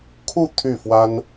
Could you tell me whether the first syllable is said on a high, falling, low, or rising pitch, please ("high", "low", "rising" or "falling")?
falling